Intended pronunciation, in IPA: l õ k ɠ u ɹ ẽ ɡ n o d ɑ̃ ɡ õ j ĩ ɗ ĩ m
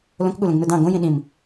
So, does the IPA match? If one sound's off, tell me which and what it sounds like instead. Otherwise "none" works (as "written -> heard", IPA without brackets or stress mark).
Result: ɹ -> l